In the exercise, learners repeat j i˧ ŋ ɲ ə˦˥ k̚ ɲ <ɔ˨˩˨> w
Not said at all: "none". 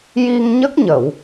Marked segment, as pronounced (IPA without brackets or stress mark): ə˨˩˨